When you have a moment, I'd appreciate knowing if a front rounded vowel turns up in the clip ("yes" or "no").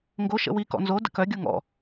yes